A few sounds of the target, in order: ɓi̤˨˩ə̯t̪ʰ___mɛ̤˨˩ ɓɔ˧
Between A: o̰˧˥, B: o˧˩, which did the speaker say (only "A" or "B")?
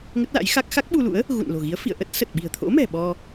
A